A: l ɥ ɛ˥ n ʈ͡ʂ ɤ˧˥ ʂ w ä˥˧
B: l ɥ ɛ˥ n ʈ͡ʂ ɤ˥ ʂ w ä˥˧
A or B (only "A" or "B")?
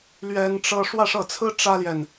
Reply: B